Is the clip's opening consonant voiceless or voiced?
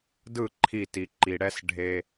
voiced